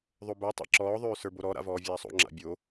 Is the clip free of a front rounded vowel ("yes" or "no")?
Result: no